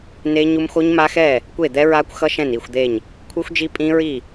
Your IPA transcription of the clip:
ne˦˥ɲu˦˥m xo˦˥ɲma˦˥xɛ˥˩ | kʷe˥˩d̪ɛ˦˥ɹa˦˥kʷ xʌ˦˥ ʃɛ̃˥˩ni˥˩xʷd̪e˥˩ɲ | kʷʰɯ˦˥xʷd͡ʒi˦˥pʼĩ˦˥ ɹi˥˩

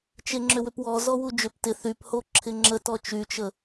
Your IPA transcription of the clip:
t͡ʃeŋ͡ǁʏwʏpwɔ zɔwud͡ʒʏp tɪ θypho ǁʰɪŋ͡ǁə tɔt͡ʃyt͡ʃə

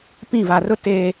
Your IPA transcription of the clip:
pĩ˦˨va˨rʊ˦ teː˨

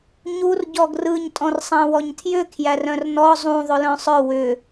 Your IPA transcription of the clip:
ɲur ɟɔɡrɯɲ tʼɔ̃rsˤæ̃wɔɲtʰjʏ kʰjærœ̃rnɔ zˤũ ðˤʏlœ̃sˤœ wʏ

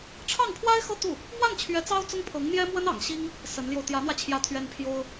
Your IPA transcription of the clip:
ʈ͡ʂʰɑ˥˩ŋpʰwa˥ɪ̯xɤ˥˧ t̪u˥˩ | mwa˥˩nt͡ɕʰɥɛ˧˥ t͡sɑ˥ʊ̯t͡sʊ˥ŋpʰɤ˧˥ŋn̪jɛ˥ mwə˥nɑ̰˨˩ŋɕi˥ŋ | sə˧˥nljo˧ʊ̯ t̪jä˧˥n̪wä˧ t͡ɕʰjä˥˩t̪ʰɥɛ˥n pʰjo˥ʊ̯

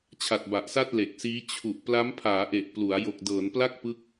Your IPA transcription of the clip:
t͡ɕʰa˨˩t̚ba˨˩ʔsa˥˩t̚ le˨˩k̚siː˦˥ t͡ɕʰu˨˩ʔ pla˦˥mpʰaː˩˦ʔe˨˩ʔ plu˩˦a̯ jo˨˩k̚dɤː˩˦npla˥˩k̚pɯ˦˥k̚

